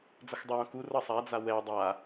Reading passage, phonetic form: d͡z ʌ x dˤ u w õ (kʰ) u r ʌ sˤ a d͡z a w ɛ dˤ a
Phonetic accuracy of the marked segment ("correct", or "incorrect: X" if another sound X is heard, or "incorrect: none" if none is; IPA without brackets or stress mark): incorrect: k